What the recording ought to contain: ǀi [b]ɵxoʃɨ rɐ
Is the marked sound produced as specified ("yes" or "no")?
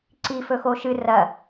no